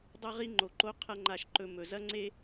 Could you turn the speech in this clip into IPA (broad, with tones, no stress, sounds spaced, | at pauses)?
dˤ ɐ˦ ʁ i˦ ŋ͡ǃ o˨ ǃ o˦ qʰ ɐ˦ ŋ͡ǃ a˧ ʃ ǃ ɵ˧ m ɵ˨ z ɐ˦ ŋ͡ǀ e˦